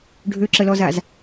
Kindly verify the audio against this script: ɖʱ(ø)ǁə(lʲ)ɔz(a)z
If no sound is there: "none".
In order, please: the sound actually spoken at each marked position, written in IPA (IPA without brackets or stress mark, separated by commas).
ø, l, a